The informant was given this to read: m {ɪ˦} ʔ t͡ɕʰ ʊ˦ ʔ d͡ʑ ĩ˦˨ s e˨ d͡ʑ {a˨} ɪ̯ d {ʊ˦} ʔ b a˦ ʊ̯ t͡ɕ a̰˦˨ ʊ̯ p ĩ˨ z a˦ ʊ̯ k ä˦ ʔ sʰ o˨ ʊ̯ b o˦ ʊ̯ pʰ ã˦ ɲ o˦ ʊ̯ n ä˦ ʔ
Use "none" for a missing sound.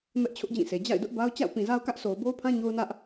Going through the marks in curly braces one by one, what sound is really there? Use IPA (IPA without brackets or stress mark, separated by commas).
ɛ˦, a̰˦˨, ʊ˦